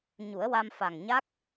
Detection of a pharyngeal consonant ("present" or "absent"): absent